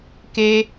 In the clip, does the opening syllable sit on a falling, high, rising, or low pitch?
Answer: high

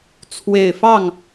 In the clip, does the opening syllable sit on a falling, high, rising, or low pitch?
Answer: low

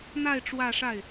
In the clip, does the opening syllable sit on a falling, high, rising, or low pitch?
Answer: falling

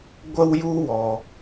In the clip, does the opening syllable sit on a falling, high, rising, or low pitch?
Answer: high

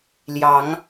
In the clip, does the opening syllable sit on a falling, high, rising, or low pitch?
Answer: rising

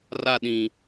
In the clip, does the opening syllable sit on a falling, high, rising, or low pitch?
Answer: falling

